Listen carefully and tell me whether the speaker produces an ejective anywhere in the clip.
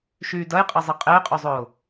yes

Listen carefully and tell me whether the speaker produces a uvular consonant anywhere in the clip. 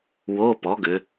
no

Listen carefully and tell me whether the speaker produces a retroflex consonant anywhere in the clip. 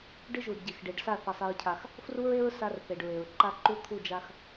yes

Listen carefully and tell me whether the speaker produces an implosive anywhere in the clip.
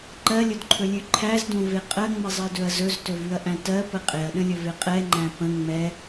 yes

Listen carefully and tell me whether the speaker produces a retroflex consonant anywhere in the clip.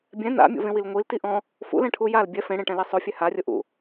yes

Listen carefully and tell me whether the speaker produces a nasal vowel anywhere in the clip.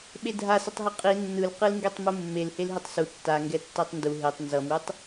no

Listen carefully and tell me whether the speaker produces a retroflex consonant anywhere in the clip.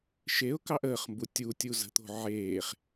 no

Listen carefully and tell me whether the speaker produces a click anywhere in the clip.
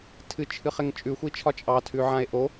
no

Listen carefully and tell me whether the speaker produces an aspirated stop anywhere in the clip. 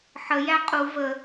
no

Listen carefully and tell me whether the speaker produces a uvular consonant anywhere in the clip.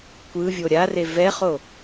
yes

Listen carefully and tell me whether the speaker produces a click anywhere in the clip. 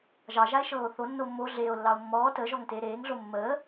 no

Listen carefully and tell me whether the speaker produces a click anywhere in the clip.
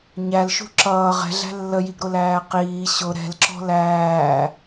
yes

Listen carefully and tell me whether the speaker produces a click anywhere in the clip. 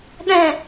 no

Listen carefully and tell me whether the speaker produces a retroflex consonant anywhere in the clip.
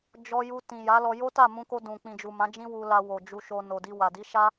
no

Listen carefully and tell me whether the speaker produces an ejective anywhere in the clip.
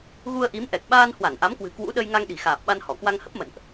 no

